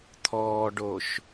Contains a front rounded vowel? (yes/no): no